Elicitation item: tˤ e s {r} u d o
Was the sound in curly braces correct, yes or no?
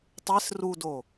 yes